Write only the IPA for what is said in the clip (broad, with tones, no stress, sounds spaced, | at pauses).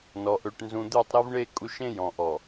n ɔ˨ ʔ ø˨ ʈ n z ũ˨ d̪ ø˦˨ tˤ ɾ e˦ v ɳ e˦˨ kʼ u˦ ʃ ẽ˦ j ɔ̃˨ ʔ ɔ˨